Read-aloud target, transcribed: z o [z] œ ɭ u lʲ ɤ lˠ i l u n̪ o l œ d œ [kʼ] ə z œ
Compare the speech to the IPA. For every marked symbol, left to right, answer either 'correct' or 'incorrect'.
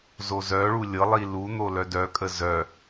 correct, correct

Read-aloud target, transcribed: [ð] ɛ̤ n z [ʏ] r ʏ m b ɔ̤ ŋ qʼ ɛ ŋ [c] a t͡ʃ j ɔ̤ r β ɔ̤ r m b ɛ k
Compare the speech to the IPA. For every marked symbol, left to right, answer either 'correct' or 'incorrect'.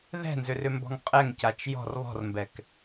correct, correct, correct

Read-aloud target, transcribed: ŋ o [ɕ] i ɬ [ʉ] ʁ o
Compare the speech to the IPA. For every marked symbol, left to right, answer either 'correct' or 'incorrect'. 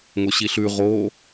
correct, correct

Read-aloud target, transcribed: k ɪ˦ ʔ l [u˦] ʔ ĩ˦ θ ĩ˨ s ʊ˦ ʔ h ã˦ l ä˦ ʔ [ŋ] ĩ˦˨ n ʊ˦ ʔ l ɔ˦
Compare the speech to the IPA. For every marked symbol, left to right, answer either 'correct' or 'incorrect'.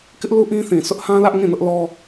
correct, correct

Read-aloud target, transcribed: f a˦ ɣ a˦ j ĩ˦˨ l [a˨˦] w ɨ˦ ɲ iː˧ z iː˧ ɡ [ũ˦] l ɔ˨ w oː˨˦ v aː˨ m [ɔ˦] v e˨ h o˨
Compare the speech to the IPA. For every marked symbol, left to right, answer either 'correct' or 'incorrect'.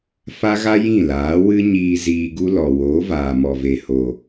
incorrect, incorrect, incorrect

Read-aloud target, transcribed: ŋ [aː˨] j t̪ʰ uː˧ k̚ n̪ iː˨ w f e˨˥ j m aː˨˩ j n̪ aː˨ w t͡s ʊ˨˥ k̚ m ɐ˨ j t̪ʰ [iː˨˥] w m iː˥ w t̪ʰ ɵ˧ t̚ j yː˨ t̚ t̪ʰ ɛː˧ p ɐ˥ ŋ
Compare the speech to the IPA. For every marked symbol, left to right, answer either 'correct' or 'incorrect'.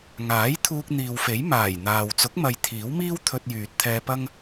incorrect, correct

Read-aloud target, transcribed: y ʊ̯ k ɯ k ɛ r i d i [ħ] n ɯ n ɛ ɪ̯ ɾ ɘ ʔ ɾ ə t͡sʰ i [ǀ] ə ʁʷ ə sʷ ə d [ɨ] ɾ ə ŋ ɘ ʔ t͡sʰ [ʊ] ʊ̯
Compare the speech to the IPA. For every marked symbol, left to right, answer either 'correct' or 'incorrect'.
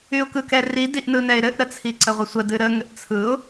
incorrect, correct, correct, incorrect

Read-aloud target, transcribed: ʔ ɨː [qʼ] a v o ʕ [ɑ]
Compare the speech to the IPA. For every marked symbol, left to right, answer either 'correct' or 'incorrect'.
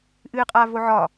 correct, incorrect

